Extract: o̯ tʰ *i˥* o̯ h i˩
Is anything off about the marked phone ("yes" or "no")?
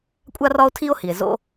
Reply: no